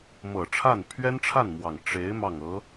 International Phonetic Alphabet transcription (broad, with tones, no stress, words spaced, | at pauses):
mɤ˨˩ʈ͡ʂʰa˥˩n pʰɥɛ˥nʈ͡ʂʰa˥˩nmwɑ˨˩ŋ ʈ͡ʂe˧˥ɪ̯ mɑ˥˩ŋɤ˧˥